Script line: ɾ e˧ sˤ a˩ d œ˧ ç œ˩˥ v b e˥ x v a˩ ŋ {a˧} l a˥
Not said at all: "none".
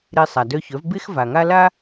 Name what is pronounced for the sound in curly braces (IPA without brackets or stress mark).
a˥